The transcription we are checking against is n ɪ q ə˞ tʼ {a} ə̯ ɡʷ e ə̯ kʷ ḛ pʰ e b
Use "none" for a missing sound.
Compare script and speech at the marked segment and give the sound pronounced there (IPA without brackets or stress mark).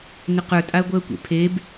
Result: a